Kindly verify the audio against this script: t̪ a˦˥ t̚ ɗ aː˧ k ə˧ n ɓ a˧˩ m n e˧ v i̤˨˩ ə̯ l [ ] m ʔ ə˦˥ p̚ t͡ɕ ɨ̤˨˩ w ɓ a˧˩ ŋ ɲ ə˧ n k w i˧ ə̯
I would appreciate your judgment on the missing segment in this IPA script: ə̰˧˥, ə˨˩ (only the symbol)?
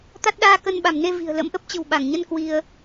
ə̰˧˥